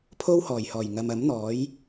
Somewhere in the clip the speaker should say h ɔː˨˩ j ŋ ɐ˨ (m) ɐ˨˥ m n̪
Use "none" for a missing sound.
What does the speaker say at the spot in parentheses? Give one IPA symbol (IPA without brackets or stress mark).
m